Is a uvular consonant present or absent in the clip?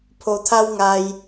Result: absent